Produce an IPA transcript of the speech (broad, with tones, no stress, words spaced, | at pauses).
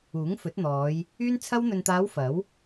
uː˨˥ŋfɵ˨˥t̚ n̪ɔː˨˧j | yː˥nt͡sʰɐ˥w n̪ɵ˨nt̪aː˨˧w fɐ˨˥w